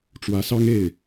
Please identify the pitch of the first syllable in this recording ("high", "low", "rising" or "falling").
rising